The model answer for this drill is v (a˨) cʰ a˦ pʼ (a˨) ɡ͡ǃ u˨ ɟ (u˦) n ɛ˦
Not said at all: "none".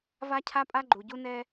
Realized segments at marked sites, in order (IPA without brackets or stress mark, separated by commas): a˦, a˦, u˦